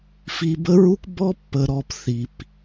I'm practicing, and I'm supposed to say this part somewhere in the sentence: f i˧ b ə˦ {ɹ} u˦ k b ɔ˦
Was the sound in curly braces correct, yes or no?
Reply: yes